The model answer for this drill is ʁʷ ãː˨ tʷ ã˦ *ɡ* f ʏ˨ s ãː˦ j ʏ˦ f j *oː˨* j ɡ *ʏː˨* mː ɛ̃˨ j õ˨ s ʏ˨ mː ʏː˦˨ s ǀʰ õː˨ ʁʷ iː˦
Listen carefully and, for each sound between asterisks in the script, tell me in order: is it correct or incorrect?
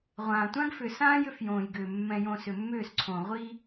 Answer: correct, incorrect, correct

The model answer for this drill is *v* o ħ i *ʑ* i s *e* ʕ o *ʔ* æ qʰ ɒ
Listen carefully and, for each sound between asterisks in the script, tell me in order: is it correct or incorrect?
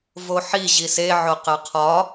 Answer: correct, correct, correct, incorrect

